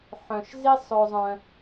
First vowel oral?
no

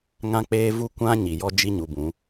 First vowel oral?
no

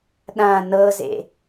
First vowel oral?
no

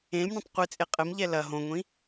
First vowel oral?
no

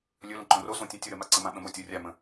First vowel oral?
yes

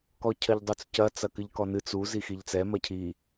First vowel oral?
yes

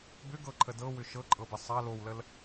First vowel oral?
yes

